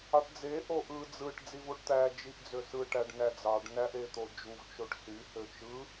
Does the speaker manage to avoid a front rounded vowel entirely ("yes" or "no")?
no